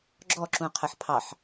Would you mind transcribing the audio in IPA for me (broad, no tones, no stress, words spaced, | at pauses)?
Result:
ɡ͡ǁɔǁũqʰəħ pʰɑħ